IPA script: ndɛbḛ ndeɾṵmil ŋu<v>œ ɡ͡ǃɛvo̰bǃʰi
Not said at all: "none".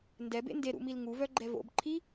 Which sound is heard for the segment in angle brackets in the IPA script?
v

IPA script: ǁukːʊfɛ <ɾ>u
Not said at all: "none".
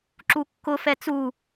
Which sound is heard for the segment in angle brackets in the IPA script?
t͡s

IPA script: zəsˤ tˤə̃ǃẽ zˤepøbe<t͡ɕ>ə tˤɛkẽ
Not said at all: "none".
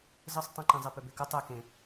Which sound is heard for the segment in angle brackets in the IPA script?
k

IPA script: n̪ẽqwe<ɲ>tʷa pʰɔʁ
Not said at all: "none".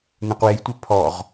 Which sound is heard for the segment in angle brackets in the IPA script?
j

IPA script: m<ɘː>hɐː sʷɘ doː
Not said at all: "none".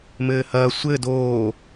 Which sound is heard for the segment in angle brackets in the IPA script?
ɘː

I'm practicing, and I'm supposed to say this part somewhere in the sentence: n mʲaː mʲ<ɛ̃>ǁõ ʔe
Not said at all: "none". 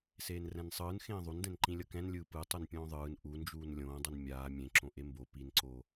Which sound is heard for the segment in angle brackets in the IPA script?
ẽ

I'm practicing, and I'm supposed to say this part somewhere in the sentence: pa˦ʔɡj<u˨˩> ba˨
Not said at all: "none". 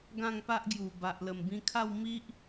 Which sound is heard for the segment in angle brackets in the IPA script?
u˨˩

